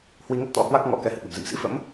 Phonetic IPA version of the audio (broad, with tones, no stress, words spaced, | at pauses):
hwi˧ŋə˦˥t̚t̪ɔ̰˧˥ hwa˦˥k̚ ŋɔ̰˧˥ kɛ˨˦hɨ̰˧˨ɓə̤˨˩m zɨ̰˧˨msḭ˧˥ fə̰˧˥m